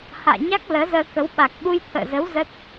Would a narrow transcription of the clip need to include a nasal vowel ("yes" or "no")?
no